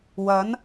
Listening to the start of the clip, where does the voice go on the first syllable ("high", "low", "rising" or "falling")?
rising